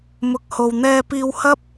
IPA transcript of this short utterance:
m ʊ˨ k̚ h o˨ w n̪ ɛː˧ p iː˧ w h ɐ˥ p̚

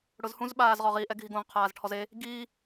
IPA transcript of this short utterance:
ɽ ʊ z h ũ z ɓ aː z ʁ ɔ ʁ i ʔ ɛ ɡʱ i ɡ õ ʁ qʰ aː z ʈʰ ɔ z e | ɡ i

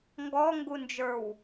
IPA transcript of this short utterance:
ŋ ɡ ɔ ŋ ɡ u n d͡ʒ ə˞ w

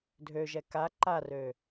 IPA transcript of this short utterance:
dʱ ø ʒ ɛ k a ǃ a r ø

